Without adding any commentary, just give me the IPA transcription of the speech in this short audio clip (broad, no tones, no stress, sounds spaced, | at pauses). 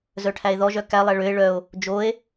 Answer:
z œ ʈʰ æ e̯ ð ɔ ʒ œ k æ lˠ æ ɭ ø e̯ ɭ œ o̯ | d͡ʒ o e̯